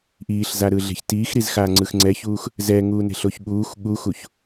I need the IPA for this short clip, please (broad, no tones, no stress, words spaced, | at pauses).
ʔiːɬzaɾɯɮe̤ç tiːxɾizxaːŋ͡ǀɯx ŋ͡ǀɛçuːx | zɛŋuːne̤ɬoç ɠuːx ɠuxuç